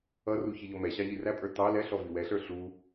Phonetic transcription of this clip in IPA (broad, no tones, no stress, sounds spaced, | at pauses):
ʌ r u ç i ʎ ɔ m ɛ ɕ ɑ ʎ i r æ pʼ ə˞ t ɑ l ɛ ɬ ɔ v i w ɛ ɬ ə˞ ɬ u